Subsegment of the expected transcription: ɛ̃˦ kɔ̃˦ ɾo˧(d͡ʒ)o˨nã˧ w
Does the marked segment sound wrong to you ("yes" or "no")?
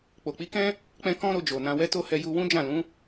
no